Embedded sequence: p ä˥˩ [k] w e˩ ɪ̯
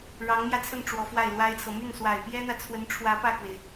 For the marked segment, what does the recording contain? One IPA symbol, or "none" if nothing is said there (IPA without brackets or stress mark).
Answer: k